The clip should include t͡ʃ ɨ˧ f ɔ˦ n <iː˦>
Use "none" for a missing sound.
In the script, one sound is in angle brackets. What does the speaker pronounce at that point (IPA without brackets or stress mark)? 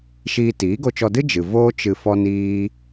iː˦